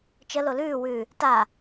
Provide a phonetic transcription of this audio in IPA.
t͡ʃə lolʉː wʉ | ta

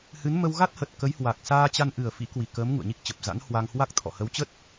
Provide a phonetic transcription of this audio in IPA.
hɨ˨˦n mə˧wɣa˦˥t̚hə˨˩t̚ kə˨˦jhwa˨˩k̚ saː˧t͡ɕa˧n ʔɨ˨˩ə̯fḭ˧˥ kwi˨˩kəː˨˦m ŋṵ˧˨ə̯ɲi˦˥k̚t͡ɕə˨˩p̚ za̰˧˥nhwa˧ŋhwa˦˥k̚ t̪ʰɔ̰˧˨hə˨˦wt͡ɕə˦˥t̚

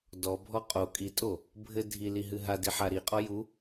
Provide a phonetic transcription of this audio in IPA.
dɔbʱɔ qʼo kʼitʼo | bʱɘ dʱiliɦɨ ɦadiħa ɾiqʼɔ ju

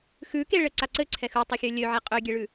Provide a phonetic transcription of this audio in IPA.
xʉkeɭɘǀa ǀɘǀʰɛx ɯtˤɛxʲø lʲøʕe qʼøɡʲeɭʉ

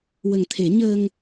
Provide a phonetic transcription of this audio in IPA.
wə˨˩ŋt̪ʰe˨˩˦ ɲəː˧ŋ

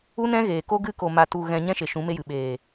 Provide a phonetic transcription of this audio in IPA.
u˦nɛ̃˦ɣeː˨ko˦ ɡɨ˦ko˨ ma˨tu˨ ɣɛ̃˧ɲɛ̃˦ʃe˨ ʃũ˨˦me˦jɨ˨ ɓeː˨

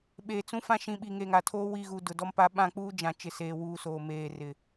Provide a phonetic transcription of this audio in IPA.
ɓeː˨t͡sũ˦fã˦ ʃĩ˨ɓi˨ ŋeː˨ŋa˨tʰoː˦ wi˦˨ɣu˨ dʊ˨dɔ˦m pa˦ ɓã˦˨k͡puː˦d͡ʒã˨ t͡ʃɪ˨seː˨wuː˨ soː˨meː˨ rɪ˨

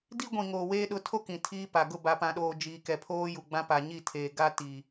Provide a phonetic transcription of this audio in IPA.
di˦ɡʷĩ˨ŋoː˨weː˦ ɗʊ˨˦ tʰo˦ kĩ˨tʰiː˦pa˨ ɡʊ˦˨ba˨pã˨ɗoː˨ d͡ʒiː˨kɛ˨pʰoː˦ ju˨ɡ͡bã˦ pa˨ɲi˦˨tʰeː˨ ɡa˦ ti˨

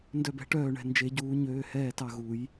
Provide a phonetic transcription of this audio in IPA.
ndœ˧˩bɛ̤˨˩˦ʈœː˧˩ɳɛ̤˩˧˩ nd͡ʒe˨˩˦ɟuː˨˩˦ ɲøː˩˧˩hɛː˧˩tɑ˧˩ ɣu˨˩˦j

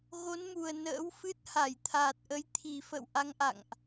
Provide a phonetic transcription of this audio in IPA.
ɣo˨˦nmu˨˩ə̯ nə̰ː˧˥wfɨ˦˥t̚ ha˧˩jt̪ʰaː˨˩t̚ ʔə˨˦jt̪ʰi˨˩ fə̰˧˨w ʔa˨˦ŋʔa̰˧˨ŋʔ

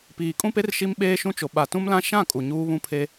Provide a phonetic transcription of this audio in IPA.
piː˨kʼũ˦pe˦r ʃi˦mɓeː˦ʃũ˦t͡ʃo˨ ɓa˨tũ˦mlã˦ ʃã˦˨ kʼu˨ɲuː˦βũ˦pʰe˦

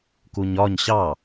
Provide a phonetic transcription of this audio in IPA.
kuɲɒɲ ɕɑ

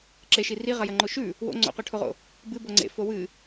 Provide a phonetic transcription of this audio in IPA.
ǁeʃi riʁɐjɐ ŋ͡ǃoʃʉ | wo̰ ŋ͡ǀo̰qɵʈʰoʁo̰ | bɨ boŋ͡ǀḛ fowɨ

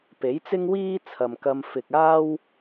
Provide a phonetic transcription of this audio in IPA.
pe˨˥jt͡sɪ˥ŋwiː˥ t͡sʰɐ˨mkɐ˧m fɪ˨k̚ aː˥w

